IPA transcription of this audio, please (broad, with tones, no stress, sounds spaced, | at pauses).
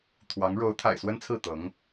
t̪ʰ w ɑ˧˥ ŋ ɻ o˧˥ ʊ̯ t̪ʰ a̰˨˩ ɪ̯ s w ə˥ n t͡sʰ ɹ̩˥˩ t̪ ɤ˧˥ ŋ